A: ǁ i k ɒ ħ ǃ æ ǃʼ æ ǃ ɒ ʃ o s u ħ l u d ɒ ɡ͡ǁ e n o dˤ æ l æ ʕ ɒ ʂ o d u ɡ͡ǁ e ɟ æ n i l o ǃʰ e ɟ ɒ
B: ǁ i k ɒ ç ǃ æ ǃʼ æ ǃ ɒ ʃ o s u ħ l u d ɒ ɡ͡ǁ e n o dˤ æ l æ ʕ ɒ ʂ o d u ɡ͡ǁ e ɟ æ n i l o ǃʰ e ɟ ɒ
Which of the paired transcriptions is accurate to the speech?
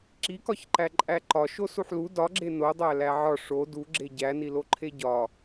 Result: B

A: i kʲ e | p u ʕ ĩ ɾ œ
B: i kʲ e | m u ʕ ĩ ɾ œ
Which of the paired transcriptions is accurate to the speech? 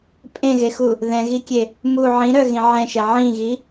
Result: B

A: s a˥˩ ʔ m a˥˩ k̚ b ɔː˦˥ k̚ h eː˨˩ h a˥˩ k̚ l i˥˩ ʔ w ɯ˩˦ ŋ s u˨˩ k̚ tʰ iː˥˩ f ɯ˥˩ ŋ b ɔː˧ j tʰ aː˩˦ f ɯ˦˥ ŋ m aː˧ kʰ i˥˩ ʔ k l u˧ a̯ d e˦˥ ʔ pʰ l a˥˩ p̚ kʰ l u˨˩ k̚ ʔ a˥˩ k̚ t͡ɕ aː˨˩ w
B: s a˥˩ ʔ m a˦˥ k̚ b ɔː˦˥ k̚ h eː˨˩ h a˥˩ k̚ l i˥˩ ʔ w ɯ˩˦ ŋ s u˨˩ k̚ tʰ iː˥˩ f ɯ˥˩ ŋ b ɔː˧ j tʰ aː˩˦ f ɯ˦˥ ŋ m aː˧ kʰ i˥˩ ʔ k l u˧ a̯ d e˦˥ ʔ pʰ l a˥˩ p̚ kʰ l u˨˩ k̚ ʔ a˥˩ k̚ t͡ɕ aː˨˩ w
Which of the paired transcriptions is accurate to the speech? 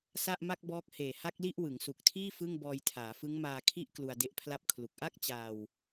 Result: A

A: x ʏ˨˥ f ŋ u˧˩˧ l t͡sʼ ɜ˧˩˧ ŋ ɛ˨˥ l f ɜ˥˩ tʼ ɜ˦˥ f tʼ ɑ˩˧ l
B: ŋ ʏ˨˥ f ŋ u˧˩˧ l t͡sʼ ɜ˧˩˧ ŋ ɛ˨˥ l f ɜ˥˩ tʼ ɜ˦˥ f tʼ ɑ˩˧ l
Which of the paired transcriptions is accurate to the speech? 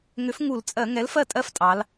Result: B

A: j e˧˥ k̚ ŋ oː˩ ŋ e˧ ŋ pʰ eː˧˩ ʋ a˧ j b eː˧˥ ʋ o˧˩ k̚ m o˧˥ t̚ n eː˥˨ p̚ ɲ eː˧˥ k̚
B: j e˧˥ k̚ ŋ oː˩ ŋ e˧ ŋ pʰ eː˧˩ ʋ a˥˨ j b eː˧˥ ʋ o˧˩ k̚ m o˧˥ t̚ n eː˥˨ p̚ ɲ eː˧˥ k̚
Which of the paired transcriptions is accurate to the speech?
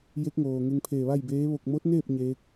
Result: B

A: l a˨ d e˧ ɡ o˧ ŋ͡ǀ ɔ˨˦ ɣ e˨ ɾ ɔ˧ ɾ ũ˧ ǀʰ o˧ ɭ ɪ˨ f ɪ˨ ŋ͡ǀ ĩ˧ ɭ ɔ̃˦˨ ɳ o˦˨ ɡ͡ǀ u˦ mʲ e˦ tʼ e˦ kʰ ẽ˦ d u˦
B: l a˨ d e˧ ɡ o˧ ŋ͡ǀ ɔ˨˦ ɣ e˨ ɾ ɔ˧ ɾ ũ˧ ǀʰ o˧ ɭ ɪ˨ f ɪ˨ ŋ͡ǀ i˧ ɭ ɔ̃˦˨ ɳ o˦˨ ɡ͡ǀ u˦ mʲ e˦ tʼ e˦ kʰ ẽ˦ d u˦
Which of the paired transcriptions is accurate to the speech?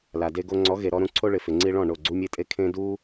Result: B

